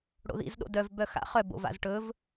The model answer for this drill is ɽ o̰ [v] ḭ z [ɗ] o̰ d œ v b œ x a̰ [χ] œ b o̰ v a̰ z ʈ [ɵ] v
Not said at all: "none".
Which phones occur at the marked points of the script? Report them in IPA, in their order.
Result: ð, ɗ, χ, ɵ

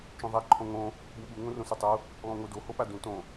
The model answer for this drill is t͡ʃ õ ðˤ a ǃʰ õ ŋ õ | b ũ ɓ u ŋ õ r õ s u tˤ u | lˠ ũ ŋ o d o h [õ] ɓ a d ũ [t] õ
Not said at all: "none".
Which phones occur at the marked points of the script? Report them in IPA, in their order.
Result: o, t

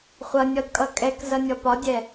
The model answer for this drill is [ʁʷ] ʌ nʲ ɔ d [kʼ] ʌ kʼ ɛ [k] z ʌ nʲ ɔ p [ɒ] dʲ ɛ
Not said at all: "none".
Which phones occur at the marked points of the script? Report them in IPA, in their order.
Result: χʷ, kʼ, k, ɒ

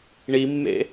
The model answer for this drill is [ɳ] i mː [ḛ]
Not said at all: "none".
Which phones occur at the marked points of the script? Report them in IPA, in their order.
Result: ɳ, ḛ

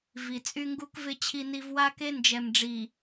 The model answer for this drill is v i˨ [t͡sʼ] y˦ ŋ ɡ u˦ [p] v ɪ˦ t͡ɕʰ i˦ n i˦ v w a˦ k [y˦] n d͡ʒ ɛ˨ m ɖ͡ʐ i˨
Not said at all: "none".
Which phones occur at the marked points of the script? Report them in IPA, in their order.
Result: t͡sʼ, k, e˦

